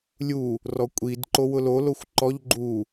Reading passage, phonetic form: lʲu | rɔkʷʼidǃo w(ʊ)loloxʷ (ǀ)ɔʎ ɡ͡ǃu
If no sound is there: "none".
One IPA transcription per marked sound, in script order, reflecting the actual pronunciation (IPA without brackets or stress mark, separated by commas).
ʊ, ǃ